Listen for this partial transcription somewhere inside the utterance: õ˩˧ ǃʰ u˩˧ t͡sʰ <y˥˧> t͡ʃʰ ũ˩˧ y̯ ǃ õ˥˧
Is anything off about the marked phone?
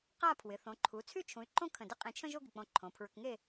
no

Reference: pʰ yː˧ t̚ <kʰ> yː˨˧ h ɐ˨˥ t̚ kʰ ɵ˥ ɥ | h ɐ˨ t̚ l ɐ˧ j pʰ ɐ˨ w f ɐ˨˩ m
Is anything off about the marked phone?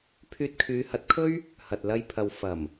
no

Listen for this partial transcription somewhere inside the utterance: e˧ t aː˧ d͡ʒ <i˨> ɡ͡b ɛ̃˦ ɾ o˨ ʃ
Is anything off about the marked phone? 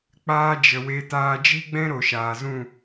yes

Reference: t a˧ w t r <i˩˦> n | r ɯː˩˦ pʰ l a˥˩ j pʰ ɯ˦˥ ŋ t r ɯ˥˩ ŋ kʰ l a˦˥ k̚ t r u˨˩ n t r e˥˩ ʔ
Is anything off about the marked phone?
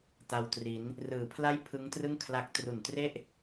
no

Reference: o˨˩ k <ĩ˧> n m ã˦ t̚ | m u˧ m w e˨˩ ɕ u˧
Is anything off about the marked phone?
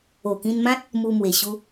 no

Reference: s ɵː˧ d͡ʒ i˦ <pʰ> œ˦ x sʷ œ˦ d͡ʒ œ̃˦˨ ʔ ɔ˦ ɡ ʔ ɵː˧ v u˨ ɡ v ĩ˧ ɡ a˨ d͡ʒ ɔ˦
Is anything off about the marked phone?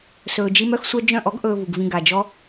yes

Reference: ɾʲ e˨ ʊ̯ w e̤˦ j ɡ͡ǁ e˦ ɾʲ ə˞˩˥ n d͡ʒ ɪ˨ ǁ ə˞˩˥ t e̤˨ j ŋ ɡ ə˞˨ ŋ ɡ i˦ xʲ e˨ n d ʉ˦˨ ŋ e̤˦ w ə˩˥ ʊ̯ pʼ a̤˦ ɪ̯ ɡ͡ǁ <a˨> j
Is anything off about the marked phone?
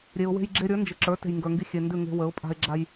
yes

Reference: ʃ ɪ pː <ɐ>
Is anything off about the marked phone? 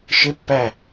yes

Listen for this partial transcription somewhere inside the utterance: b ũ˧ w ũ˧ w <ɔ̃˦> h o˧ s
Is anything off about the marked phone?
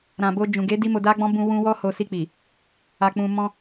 yes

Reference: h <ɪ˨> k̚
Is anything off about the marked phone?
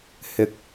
no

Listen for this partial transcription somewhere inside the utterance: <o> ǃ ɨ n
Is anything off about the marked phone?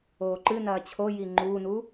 yes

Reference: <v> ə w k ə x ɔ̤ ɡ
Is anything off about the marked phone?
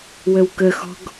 yes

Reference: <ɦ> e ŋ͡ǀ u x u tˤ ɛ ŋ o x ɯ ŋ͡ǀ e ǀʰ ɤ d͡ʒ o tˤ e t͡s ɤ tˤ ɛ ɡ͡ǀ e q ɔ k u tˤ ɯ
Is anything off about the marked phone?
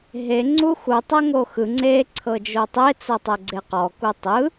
no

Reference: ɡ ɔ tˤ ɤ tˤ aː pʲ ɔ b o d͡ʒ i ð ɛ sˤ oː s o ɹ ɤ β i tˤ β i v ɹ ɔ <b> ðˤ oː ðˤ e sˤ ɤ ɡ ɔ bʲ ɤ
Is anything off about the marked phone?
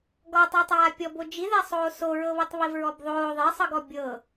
no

